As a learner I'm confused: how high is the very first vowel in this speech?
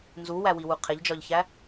high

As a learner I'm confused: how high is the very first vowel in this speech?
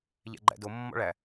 low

